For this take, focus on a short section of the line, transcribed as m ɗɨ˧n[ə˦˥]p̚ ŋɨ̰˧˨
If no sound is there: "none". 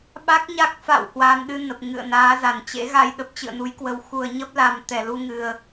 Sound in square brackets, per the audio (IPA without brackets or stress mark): ə˨˩